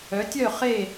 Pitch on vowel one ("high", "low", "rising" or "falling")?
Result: rising